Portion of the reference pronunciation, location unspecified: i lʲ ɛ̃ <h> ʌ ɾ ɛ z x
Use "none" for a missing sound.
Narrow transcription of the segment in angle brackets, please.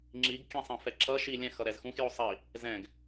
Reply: x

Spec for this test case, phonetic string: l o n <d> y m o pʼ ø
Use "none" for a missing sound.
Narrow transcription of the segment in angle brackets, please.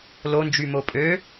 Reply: d͡ʒ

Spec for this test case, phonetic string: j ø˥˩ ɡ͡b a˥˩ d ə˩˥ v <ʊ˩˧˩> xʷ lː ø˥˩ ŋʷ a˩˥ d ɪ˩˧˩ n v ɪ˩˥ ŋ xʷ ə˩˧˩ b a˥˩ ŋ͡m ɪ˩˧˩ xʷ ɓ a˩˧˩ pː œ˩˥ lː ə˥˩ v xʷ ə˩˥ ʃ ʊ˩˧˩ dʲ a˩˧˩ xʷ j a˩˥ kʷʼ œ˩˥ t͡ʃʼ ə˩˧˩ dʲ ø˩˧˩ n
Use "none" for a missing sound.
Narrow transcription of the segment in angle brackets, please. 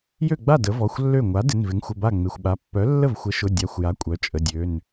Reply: ɔ˩˧˩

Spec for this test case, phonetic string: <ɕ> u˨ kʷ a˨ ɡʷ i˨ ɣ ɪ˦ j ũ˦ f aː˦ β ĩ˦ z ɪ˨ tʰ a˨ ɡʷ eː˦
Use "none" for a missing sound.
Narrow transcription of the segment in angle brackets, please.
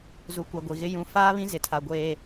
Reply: z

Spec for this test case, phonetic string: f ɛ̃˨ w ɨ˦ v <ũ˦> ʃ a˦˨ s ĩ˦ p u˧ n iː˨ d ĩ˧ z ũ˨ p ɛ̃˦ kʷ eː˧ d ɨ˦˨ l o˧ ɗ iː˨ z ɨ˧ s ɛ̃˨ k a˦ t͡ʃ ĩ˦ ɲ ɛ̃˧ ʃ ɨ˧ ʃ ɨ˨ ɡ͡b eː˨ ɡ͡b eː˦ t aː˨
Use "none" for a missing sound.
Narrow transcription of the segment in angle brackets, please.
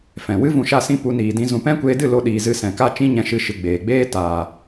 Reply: ũ˧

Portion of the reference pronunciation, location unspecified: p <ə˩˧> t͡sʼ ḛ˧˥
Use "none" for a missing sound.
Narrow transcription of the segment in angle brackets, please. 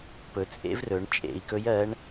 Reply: ɵ˩˧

